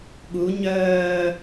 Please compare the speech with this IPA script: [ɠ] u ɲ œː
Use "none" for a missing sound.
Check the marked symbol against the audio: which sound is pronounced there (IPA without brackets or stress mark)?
ɠ